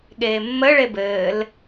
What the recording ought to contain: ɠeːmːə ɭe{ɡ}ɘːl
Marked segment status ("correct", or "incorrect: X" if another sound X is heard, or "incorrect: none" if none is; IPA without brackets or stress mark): incorrect: b